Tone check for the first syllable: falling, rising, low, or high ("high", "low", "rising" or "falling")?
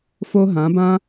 high